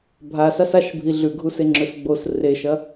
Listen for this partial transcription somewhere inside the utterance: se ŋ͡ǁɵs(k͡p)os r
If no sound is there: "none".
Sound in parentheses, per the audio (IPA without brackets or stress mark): ɡ͡b